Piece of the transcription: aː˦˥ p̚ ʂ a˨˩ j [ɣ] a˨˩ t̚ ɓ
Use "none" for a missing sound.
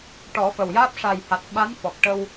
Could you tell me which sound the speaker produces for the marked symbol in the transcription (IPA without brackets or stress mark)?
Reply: h